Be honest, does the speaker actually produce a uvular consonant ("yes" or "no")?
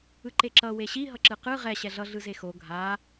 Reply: yes